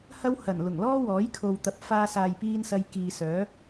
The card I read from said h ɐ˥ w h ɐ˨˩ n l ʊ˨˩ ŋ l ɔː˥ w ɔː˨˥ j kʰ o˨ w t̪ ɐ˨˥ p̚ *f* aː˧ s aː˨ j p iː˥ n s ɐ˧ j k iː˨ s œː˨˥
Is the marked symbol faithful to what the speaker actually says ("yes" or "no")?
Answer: yes